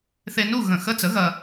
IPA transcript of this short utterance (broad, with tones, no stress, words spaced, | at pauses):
θe˧nu˥˨ ɣə̃˧˩˧ xə˧˥˧t͡sə˩˥ ɣɐ˧